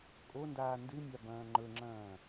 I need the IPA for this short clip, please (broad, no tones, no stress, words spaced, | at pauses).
kʼondaː ndɨmʲa bɐ̃ːŋ͡ǃɵŋ͡ǁɐ̃ː